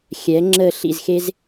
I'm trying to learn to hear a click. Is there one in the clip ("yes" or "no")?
yes